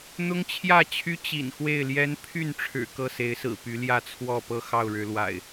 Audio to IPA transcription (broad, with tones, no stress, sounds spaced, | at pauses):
n̪ ʊ˦ ŋ t͡ɕʰ j ä˥˨ t͡ɕʰ y˦ t͡ɕ ḭ˨˩ n x w e˥˨ ɪ̯ l j ɛ˦ n pʰ y˥˨ n ʈ͡ʂʰ ɻ̩˨˩ k ɤ˥˨ s e˨˦ ɪ̯ s ɹ̩˨˩ p y˨˦ l j ä˥˨ t͡sʰ w ɔ˥˨ p ɤ˥˨ x ɑ˥˨ ʊ̯ ɻ ɻ̩˨˦ l w a̰˨˩ ɪ̯